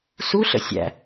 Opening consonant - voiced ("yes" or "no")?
no